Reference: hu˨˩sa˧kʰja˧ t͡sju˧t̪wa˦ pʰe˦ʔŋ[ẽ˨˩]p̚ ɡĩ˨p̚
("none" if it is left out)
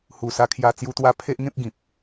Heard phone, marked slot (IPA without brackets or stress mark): ẽ˦